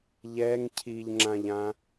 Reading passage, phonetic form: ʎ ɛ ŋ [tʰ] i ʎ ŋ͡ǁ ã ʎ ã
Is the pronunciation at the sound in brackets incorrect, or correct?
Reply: incorrect